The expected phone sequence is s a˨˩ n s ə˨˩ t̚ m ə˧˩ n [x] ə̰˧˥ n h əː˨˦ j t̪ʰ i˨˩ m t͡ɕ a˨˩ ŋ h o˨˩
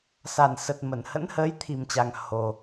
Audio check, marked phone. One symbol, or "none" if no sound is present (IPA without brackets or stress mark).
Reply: h